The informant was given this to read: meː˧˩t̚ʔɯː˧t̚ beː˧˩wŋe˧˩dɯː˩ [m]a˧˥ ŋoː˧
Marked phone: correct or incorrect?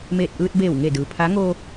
incorrect: pʰ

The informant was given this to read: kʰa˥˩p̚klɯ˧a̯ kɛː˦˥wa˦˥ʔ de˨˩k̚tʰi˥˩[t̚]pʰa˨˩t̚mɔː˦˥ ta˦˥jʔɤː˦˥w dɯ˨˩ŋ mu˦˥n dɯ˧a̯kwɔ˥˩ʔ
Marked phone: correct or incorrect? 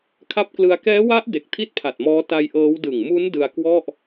correct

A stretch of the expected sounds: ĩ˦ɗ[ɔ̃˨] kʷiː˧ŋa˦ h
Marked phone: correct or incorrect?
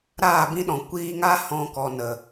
correct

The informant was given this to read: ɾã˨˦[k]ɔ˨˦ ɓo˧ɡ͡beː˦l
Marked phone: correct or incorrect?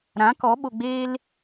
correct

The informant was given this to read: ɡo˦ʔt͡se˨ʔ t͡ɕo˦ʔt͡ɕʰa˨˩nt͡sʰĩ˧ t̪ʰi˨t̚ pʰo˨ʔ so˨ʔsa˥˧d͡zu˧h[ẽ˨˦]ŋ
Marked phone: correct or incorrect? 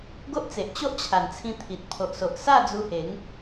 incorrect: e˨˦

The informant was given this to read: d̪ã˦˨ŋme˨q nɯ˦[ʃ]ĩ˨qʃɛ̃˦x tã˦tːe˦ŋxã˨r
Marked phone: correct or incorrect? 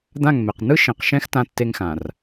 correct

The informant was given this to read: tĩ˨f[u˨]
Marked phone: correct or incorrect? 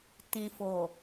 incorrect: o˨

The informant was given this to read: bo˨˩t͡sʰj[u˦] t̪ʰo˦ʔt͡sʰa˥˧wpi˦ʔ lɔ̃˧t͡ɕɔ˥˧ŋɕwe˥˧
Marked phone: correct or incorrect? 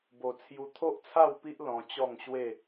incorrect: u˧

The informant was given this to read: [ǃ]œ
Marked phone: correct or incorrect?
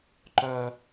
correct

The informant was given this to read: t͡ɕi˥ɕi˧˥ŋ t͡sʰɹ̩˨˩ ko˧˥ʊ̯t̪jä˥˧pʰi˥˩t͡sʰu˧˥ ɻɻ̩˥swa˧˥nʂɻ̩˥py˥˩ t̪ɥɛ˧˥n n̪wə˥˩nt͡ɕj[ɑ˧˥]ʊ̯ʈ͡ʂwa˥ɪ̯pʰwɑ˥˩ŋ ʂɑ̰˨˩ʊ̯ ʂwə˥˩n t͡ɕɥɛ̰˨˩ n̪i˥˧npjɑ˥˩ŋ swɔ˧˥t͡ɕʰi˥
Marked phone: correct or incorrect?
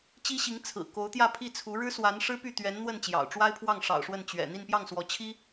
incorrect: ɑ̰˨˩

